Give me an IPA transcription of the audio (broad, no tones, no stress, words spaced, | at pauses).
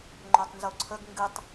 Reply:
ŋ͡ǃotˤnzoǀʰəɡ ŋɡɨtˤ